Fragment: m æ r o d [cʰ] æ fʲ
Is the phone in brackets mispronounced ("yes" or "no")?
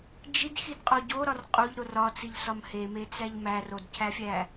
no